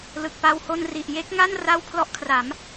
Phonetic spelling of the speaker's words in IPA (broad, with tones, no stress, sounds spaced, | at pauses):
l ɯ˨˩ k̚ p a˧ w h o˧ n r i˨˩ ʔ j e˦˥ k̚ ŋ a˥˩ n r a˥˩ w pʰ l ɔ˦˥ ʔ kʰ r a˩˦ m